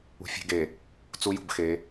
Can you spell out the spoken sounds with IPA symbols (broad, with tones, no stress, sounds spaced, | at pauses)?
ṳ˨ fʲ e̤˦ ɡ e˨ | t͡s u˦ j ṳ˨ b x e˨˦